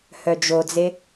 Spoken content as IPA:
h œ d͡ʒ o d͡z e

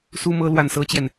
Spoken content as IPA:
s u˥ m ɤ˥ l w a˥˩ n s ɤ˥ t͡ɕ j ɛ˨ n

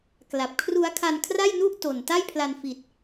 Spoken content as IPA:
k l a˨˩ p̚ kʰ r u˦˥ a̯ kʰ a˧ n kʰ r a˥˩ j n u˥˩ ʔ t o˨˩ n t a˥˩ j pʰ l a˧ n f i˨˩ t̚

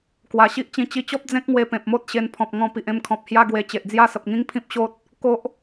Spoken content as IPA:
k w a˨˩ ɕ i˦ ʔ t͡ɕ ĩ˧ t͡ɕ i˧ t͡ɕ ɔ˦ p̚ d͡z ẽ˦ k̚ ŋ w e˧ p ẽ˨ p̚ m o˦ t̚ ɕ e˧ n pʰ ɔ̃˨ p̚ ŋ ɔ̃˧ p i˨ ʔ ẽ˧ m kʰ ɔ̃˨ p̚ h j a˦ ɡ w e˧ t͡ɕ e˨ ʔ d͡z j a˥˧ s ə˨ p̚ ŋ ĩ˦ ŋ pʰ ĩ˦ p̚ ɕ o˦ t̚ | k o˦ ʔ

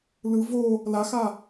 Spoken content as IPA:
l ɯ v o | l a x a

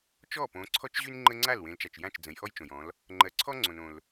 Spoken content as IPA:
t͡ʃ ɔ˥˩ p õ˨˦ ǀʰ ɔ˦ t͡ʃ ʑ y˦ n ŋ͡ǃ ə˦ ŋ͡ǀ a˥˩ l w ẽ˨˦ l t͡ʃ a˨ t͡ʃ j ã˥˩ t͡ʃ d͡z ə̃˨˦ j ʔ ɔ˦ j t͡ʃ õ˨ j ɔ̃˨˦ l | ŋ͡ǃ ɜ˨ ǀʰ ɔ˦ ŋ͡ǀ õ˨ n õ˨ l

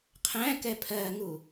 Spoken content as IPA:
qʰ æ̃ k ɛ pʰ ɜ ŋ u

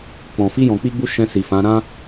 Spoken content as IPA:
k͡p ɔ̃˨ f i˧ j ɔ̃˨ k͡p i˧ ɡ͡b u˧ ʃ ɛ̃˧ s i˨ f ã˨˦ ɾ ã˦

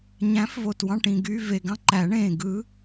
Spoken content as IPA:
ɲ æ̃˨˥ f v o˨˩ t w ɑ̃˦˨ ʈ ĩ˨˩ ɡ y˧˥˧ v e˨˩ ɡ ɑ̃˦˨ ǃ æ˨˩˦ ɳ ẽː˨˩ ɡ ɯ˨˥

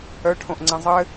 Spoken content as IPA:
œ ʈʰ õ ʔ ŋ͡ǀ ɛ̃ zˤ ɘ

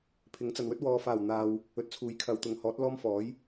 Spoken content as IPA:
pʰ ɪ˨˥ ŋ t͡s ɐ˨ n w ɵ˥ t̚ w ɔː˧ f aː˨˩ w n̪ aː˨ w | ɵ˨ t̚ t͡sʰ uː˨˥ j kʰ ɐ˨ w t̪ ʊ˨ ŋ h ɔː˨˥ t̚ l ɔː˥ m f ɔː˨˥ j

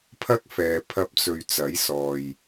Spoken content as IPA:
pʰ ɐ˥ k̚ f ɛː˨ pʰ ɐ˧ p̚ t͡s ɵ˨ ɥ t͡s ɐ˨˥ j s ɔː˨ j

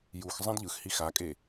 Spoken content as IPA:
j u x zˤ ẽ d ʎ ɯ x h i x a kʼ e

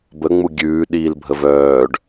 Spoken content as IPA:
b ə ŋ͡m u ɡʲ ʉː ɗ iː l bʱ ə v œː ɖ

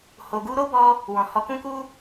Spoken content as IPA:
h o˧ ɡ u˧ ɾ o˦ b ɔ˧ | w ɔ̃˨ h ɔ˨˦ k ũ˦ k u˦

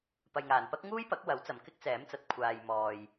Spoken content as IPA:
p ɐ˨ j ŋ aː˨˩ n p ɐ˥ k̚ ŋ uː˥ j p ɐ˨˥ k̚ w ɐ˨˥ w t͡s ɐ˨ m k ɪ˥ k̚ t͡s ɛː˨˥ m t͡s ɐ˨ t̚ kʷʰ aː˨ j m ɔː˨ j

